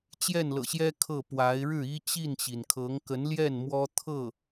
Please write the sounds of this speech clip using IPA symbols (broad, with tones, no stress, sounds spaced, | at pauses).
t͡ɕ j ɛ˥˩ n l ɤ̰˨˩ ɕ j ɛ˥ kʰ ɤ˥˩ p w a˧˥ ɪ̯ ɻ ɻ̩˥˩ i˥ t͡ɕ i˥˩ n t͡ɕ i˩ n kʰ ɤ˧˥ ŋ k ə˧˥ n l j ɛ˥˩ n m w ɔ˥ t̪ʰ ɤ˥˩